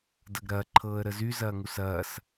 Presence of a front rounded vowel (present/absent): present